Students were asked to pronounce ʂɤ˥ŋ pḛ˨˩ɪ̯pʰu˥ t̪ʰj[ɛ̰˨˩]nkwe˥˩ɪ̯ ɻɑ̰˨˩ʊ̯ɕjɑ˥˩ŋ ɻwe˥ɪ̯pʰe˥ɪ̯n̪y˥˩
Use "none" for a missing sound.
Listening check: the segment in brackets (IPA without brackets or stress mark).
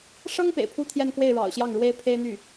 ɛ˥˧